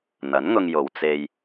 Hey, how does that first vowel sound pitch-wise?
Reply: rising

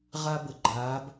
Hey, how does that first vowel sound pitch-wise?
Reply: high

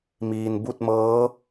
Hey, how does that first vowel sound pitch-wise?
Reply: low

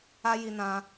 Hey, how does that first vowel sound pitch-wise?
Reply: high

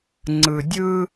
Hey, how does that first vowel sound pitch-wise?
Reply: low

